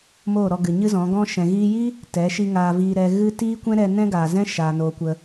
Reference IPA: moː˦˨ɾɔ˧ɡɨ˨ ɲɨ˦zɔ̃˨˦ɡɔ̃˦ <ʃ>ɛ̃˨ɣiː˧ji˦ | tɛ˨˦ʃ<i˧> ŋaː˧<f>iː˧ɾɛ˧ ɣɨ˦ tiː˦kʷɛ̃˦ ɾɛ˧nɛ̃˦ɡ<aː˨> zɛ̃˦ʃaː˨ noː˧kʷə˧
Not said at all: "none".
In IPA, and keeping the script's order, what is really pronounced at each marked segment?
ʃ, i˧, v, aː˨

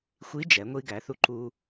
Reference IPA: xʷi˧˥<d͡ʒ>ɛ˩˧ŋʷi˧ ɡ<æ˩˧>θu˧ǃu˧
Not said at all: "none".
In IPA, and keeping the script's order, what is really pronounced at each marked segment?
d͡ʒ, æ˩˧

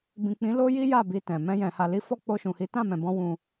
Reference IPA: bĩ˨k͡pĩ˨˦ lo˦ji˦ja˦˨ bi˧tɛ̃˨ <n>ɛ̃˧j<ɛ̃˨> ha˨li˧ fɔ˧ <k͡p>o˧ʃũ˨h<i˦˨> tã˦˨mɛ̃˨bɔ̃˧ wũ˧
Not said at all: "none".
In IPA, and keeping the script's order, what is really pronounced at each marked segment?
m, ɛ̃˨, k͡p, i˨˦

